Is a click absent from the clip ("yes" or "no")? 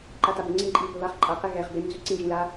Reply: no